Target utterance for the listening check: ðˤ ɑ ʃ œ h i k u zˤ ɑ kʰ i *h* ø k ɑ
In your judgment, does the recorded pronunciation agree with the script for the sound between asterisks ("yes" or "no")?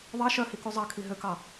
no